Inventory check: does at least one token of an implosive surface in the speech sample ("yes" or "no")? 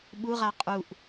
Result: yes